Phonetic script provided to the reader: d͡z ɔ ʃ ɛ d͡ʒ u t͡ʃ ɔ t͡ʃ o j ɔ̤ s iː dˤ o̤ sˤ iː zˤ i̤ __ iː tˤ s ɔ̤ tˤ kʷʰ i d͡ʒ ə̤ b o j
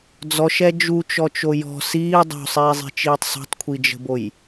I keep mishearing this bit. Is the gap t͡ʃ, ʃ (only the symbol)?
t͡ʃ